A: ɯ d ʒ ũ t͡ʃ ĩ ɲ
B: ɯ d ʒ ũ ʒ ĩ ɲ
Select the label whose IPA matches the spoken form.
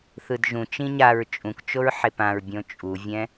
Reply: A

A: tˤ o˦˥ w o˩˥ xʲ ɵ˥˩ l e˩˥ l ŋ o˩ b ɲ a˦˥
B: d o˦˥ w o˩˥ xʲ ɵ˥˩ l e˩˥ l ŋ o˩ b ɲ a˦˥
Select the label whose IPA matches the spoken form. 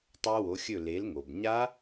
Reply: A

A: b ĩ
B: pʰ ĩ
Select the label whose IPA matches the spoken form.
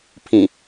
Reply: B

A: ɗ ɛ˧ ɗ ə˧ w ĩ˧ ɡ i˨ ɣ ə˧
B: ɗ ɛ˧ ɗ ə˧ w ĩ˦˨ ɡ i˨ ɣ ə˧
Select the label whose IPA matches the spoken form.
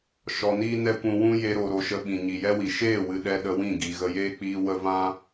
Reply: B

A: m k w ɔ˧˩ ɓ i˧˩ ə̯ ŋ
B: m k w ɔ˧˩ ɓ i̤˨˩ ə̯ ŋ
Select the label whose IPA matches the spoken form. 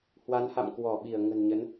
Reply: A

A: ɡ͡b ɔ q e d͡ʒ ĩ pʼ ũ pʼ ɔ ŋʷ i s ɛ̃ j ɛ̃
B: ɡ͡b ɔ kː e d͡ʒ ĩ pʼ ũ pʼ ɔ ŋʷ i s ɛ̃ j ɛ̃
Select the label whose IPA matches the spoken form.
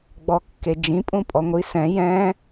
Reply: B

